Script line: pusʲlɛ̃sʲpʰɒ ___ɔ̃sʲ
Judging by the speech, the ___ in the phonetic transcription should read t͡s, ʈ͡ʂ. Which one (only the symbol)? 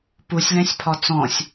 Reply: t͡s